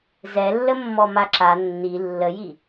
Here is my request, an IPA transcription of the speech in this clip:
zɛlːəmːɔ maǁa nːi lːəji

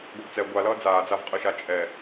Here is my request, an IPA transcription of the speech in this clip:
ɡʷʌɡt͡sɛ ɡʷalʌː d͡zaːd͡zavqʼɯ ʃat͡ʃʼɛ

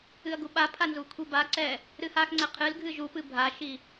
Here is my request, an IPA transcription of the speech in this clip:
ɨɐ̯ɡuɓapʰa nzukʷʰibaǀɛ | ɾɨhaxŋ͡ǀɛ qʰɨlɡʱɨ ʒupɨ bʱaʃi

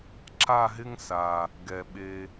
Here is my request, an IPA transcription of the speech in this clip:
ǁa˦˨ɦɪ˦ŋ sa˨ | ɡɛ˨ɓe˧

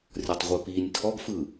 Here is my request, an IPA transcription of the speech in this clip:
rʲɔtˤʁʷə˞piːnʲtʰɔɡ fɯ

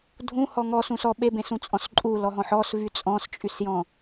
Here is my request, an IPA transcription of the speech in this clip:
dʱũhɔ ŋɔsũs ɔ ɓebẽsũt͡sʼɔ̃s ǃʼulɔɦɔ̃ħ ɔsvy t͡sʼɔ̃st͡ʃʼysjɔ̃

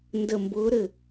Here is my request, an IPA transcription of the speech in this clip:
ndə˧˩mbʊː˨˥ɾɘ˥˩

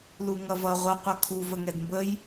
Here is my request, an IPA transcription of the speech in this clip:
luŋʌvʌ ʁʷʌ qʷʌkʰu vəŋɛdmbəj

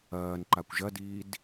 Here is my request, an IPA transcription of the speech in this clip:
ɐːn ǃakʷʒɐdiːd

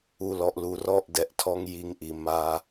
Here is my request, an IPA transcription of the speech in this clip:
u˨lɔ˨ʔlu˨ rɔ˦ʔdɛ˨ʔ tʰɔ˦ŋ ji˦˨ŋʔi˨ ma˦

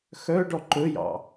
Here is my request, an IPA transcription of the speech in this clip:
xœɖɔ ǃɵjɑ̰

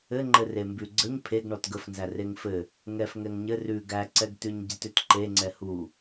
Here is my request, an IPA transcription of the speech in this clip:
ɘŋ͡ǃɘ rembʉɡ͡ǀəɲ pʰeɡ ɳɔtɡəfnzæ reŋfɘ | ŋɛf ŋɛŋɲɘ rʉ ɡæǀɛɡtʉɲɟɘt ʏtǃe ŋ͡ǀɛhu

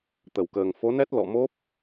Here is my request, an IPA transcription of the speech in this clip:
t̪ə˧˩wkəː˨˩ŋ fo˨˦nɛ˦˥t̚ lɔ̰˧˨mo˦˥p̚

